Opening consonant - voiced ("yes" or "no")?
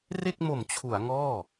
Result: yes